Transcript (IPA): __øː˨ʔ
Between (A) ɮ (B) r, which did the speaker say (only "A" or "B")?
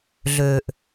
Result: A